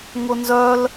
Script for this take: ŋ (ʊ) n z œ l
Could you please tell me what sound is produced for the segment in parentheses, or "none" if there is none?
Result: ʊ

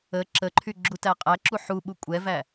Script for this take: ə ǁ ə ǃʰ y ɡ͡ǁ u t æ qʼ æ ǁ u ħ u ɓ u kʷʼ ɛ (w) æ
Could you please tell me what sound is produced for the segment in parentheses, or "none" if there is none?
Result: v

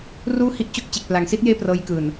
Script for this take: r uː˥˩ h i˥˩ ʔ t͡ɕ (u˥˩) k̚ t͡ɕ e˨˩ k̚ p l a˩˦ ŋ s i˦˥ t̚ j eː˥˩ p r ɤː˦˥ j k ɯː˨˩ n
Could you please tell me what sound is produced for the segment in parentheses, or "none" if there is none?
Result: o˥˩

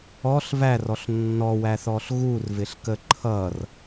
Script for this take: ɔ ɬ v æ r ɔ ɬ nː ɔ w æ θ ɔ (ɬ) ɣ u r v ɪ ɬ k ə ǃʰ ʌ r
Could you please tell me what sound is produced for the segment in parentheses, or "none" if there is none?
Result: ɬ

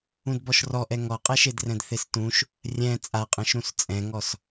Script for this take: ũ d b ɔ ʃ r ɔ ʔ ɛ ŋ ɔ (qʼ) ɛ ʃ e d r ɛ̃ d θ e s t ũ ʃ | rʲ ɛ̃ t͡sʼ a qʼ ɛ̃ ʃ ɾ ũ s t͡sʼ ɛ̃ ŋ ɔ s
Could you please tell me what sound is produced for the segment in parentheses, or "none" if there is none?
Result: qʼ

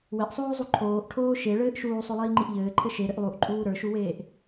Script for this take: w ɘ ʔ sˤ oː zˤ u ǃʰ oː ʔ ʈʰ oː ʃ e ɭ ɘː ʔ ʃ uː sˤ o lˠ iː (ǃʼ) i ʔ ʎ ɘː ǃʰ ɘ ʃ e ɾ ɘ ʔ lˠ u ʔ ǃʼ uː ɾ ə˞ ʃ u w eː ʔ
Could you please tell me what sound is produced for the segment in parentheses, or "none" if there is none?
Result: ŋ͡ǃ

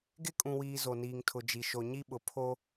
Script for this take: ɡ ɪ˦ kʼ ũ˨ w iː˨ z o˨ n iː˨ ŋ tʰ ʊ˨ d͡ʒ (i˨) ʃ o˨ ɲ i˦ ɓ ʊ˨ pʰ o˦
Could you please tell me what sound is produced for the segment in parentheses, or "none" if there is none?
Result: i˨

